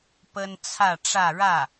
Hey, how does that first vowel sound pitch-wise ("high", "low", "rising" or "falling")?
high